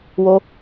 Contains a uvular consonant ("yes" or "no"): no